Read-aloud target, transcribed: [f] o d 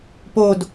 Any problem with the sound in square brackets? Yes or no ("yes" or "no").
yes